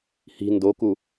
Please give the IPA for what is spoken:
h i̤ n d o k u

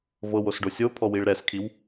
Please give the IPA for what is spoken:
v ɤ w o s ɖ o sʲ o pʰ ɔ w i ɭ ɾ ɛ s kʰ i w

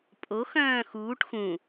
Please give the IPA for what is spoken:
pʼ o x œ̃ː x uː ʈ x ũ

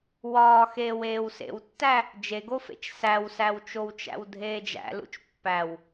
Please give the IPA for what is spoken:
w ɒː x eː w eː w s ḛ w tː æ | d͡ʒ e ɡ o f ḛ t͡ʃ s æ w s æ w t͡ʃ o w t͡ʃ æ̰ w dʱ eː d͡ʒ æ̰ l ṵ t͡ʃ pː æ w

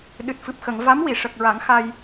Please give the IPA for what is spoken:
ɗ ɨ˨˩ t̚ f ɨ˨˩ p̚ x ə˨˩˨ ŋ v a˧˥ m w i˨˩˨ ʂ ə˨˩ k̚ ɹ a˨˩˦ ŋ x a˧ j

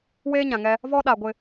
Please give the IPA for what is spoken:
w eː˦ ɲ ã˨ ŋ ɛ˦ | v ɔ˦ ɗ a˨ ɡʷ ɪ˦

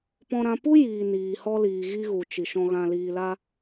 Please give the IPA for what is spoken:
p ɔ̃˧ ɾ ã˧ p u˦ j iː˨ n iː˨ h ɔ˧ l iː˨ ɣ i˧ ɣ u˨ t͡ʃ i˨ ʃ ɔ̃˧ ɣ ã˧ l iː˨ l a˧

